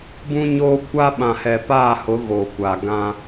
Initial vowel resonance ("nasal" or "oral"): nasal